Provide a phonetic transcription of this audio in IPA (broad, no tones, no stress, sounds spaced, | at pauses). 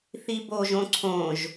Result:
θ i b o ʒ õ ǀʰ õ ʒ